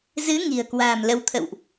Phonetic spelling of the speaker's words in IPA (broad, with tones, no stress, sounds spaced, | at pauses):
z ɨ˨˦ ŋ i̤˨˩ ə̯ k w a̤ː˨˩ m l ə˨˦ w t̪ʰ ə̰˧˨ w ʔ